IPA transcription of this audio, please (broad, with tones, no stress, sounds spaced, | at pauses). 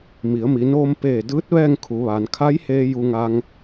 m i˩˧ ə̯ m i˩˧ n oː˧ m p eː˧˩ d ɯː˧˥ t̚ ʋ ɛː˥˨ ŋ kʰ u˩˧ ʋ aː˩˧ n kʰ a˧˥ j h eː˧ j u˧ ŋ a˧ ŋ